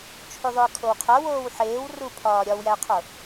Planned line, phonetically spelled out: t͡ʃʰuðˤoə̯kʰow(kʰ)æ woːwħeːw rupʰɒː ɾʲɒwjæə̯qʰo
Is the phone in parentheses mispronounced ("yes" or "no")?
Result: yes